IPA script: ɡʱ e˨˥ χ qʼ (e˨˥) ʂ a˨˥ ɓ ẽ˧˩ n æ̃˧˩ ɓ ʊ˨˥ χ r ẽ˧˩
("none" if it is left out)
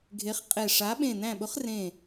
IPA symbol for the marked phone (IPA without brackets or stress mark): e˧˩